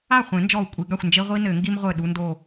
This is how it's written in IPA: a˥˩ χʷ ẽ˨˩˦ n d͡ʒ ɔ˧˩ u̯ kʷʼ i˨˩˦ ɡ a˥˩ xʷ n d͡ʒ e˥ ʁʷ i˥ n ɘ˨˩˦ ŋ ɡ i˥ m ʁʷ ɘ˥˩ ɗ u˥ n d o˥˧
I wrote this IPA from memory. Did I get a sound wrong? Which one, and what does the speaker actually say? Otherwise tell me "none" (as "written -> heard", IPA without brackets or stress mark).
none